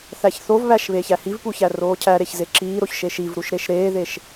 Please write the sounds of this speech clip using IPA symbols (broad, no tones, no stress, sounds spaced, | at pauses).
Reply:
θ æ ç θ o v β æ ʃ β eː ç æ h i v p u ç æ r oː cʰ æ ɾ e ç z e ǁ iː ɾ o ç ʃ e ʃ i v ɾ u ʃ ɾ e ʃ ɾ eː ð e ʃ